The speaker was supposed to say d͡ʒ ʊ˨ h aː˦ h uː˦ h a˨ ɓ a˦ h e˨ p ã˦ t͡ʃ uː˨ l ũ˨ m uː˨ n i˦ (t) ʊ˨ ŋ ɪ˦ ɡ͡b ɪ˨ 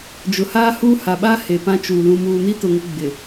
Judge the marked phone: correct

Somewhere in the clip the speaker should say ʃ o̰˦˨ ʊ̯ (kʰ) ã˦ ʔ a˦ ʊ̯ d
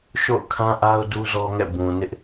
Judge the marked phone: correct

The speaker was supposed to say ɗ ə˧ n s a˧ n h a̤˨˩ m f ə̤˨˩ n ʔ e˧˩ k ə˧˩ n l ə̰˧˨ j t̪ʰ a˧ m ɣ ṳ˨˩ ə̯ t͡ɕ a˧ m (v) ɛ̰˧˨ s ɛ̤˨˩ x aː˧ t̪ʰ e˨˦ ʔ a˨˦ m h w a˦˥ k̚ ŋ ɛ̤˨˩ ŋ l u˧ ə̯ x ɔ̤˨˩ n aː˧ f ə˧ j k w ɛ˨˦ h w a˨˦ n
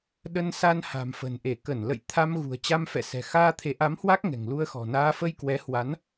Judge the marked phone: incorrect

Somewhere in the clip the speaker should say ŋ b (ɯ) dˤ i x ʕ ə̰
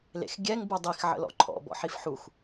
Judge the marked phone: incorrect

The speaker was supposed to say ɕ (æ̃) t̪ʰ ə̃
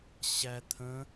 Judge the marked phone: incorrect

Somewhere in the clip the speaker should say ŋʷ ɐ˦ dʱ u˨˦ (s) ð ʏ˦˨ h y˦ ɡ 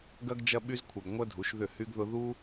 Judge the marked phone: incorrect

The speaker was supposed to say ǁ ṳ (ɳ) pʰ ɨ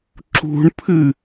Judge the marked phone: correct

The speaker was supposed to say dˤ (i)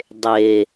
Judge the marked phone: incorrect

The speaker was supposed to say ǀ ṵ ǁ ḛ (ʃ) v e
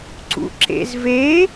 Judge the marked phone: incorrect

